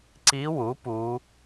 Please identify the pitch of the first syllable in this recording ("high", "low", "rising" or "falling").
rising